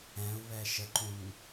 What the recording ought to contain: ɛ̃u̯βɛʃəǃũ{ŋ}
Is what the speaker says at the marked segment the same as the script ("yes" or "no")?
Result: yes